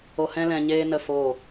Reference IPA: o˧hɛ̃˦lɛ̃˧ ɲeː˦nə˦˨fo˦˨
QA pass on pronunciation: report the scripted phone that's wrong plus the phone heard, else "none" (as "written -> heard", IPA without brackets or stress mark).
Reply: none